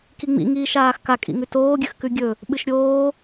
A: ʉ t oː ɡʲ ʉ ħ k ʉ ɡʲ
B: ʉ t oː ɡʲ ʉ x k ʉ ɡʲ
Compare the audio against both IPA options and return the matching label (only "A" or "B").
B